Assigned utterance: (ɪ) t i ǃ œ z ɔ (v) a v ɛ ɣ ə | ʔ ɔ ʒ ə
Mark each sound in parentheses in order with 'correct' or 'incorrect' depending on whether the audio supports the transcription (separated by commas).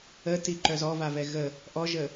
incorrect, correct